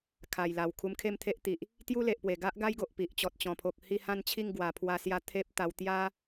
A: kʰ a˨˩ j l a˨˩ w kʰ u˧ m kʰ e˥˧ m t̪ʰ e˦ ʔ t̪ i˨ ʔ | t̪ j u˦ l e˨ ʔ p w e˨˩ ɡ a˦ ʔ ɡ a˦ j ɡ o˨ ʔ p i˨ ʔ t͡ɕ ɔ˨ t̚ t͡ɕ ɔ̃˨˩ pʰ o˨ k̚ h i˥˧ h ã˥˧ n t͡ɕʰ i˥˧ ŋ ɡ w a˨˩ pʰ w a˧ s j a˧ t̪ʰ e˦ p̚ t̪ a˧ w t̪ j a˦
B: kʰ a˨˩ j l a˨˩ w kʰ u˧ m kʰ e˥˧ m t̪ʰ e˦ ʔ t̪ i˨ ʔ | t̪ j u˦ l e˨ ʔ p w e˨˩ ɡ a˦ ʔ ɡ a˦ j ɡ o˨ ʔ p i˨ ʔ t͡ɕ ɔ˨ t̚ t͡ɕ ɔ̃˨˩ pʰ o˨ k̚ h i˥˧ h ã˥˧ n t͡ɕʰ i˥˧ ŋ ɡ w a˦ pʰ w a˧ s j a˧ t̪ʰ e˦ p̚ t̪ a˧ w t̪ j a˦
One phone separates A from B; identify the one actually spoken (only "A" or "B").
A